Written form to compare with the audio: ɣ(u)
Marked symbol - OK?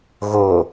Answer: no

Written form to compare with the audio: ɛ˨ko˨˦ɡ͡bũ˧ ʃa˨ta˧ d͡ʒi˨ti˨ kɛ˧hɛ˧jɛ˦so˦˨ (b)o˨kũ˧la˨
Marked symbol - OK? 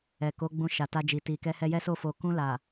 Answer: no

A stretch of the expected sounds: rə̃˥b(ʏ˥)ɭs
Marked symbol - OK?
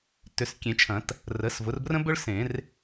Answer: yes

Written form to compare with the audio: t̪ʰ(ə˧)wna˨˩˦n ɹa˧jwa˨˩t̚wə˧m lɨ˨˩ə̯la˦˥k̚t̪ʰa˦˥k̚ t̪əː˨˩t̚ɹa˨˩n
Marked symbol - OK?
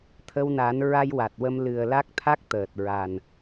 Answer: yes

